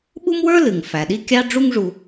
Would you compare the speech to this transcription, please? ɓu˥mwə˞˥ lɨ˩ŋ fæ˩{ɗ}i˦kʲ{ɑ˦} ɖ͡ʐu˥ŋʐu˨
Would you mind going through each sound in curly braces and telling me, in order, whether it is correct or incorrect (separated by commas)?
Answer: correct, correct